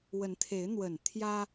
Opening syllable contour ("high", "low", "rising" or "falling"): rising